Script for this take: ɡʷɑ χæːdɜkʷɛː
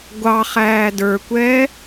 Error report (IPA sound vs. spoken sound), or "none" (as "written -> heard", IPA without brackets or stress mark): ɜ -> ə˞